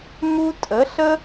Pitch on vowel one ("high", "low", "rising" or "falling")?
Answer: high